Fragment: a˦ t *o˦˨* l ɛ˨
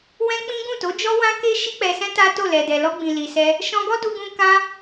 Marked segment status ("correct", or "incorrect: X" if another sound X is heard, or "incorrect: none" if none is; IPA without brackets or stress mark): correct